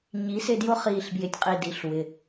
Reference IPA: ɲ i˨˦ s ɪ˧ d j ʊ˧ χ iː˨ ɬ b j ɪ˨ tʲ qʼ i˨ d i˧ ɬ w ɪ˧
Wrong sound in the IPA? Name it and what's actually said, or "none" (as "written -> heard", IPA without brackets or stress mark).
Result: none